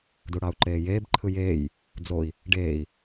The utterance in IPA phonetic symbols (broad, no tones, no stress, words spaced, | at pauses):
duɽɑu̯ǃeːjeːb ǃʰɯjeːj | d͡zoi̯ | ɖeːi̯